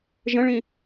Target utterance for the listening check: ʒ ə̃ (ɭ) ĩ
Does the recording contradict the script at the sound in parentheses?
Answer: no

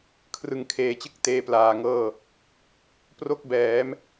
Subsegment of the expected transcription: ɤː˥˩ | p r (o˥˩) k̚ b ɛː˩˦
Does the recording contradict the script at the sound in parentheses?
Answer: yes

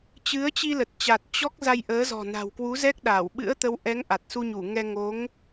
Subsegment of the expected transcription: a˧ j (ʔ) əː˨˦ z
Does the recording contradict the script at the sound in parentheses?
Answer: no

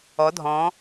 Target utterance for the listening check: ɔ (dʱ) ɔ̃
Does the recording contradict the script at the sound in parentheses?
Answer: no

